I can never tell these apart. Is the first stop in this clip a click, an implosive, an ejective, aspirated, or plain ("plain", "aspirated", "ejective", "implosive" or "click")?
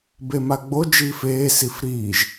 plain